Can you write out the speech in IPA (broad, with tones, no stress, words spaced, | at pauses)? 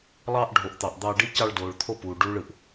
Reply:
lˠɑː˧ʔ ɖʱo˨ʔt̪ɑ˨ʔd̪ɑː˧ɖi˦ cɑ˧ɭdoː˨ɭt̪ʰo˦˨ puː˨ ɖuː˦ɭɯ˨ʔ